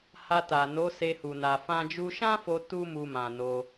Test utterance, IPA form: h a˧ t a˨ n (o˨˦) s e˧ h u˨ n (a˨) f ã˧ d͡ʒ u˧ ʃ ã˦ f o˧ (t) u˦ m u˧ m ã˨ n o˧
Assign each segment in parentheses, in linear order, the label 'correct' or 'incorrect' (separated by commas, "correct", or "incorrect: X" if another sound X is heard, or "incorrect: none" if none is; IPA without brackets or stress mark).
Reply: correct, correct, correct